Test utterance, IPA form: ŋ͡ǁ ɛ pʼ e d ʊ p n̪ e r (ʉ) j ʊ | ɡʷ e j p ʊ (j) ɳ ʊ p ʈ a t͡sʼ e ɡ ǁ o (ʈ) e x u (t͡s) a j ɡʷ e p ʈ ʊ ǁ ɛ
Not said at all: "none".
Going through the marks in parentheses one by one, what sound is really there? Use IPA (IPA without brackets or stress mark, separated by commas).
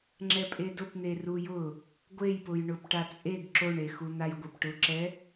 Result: u, j, ɳ, n̪